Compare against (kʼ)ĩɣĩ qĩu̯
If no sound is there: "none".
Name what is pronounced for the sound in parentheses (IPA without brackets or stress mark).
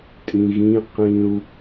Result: tʼ